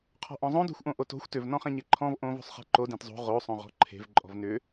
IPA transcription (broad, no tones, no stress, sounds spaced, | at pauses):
qʰ ɔ̤ ʔ ɔ̃ zˤ õ d o̤ xʷ ʔ õ ʔ o t o̤ xʷ t ʏ v n ɔ̃ χ ẽ ɲ e ǃʰ ɔ̃ v ʔ õ v o̤ sˤ χ e̤ ǃ o d ẽ t zˤ o̤ ʁ o sˤ õ ʁ ɔ̤ ǃʰ e̤ v ǃʼ ɔ̤ v n ʏ